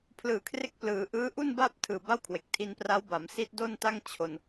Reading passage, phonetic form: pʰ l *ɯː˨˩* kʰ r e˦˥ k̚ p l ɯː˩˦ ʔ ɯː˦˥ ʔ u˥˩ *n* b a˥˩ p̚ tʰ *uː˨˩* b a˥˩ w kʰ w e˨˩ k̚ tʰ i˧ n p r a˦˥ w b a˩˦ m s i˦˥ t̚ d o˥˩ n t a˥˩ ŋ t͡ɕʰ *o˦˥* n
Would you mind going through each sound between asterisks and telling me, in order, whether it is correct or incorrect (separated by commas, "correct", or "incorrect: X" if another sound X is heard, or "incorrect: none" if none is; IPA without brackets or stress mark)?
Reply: correct, correct, incorrect: ɯː˨˩, incorrect: o˧